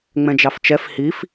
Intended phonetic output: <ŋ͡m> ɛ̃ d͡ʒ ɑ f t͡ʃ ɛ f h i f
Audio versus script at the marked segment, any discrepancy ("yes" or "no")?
no